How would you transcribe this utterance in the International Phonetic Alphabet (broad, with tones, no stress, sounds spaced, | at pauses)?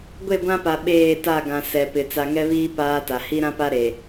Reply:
ɡʷ e˦˨ ɡʷ ã˦ p a˨ ɓ eː˦˨ t a˦˨ ɡ ã˨ s ɛ˨ p ɪ˨ t͡s a˨ ŋ ɛ˦ β iː˦ p aː˦ t a˨ h i˦ ɾ ã˦ p a˦ ɾ e˨